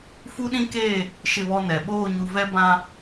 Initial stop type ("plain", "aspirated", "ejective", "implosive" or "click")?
implosive